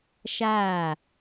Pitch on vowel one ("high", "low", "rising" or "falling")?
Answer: falling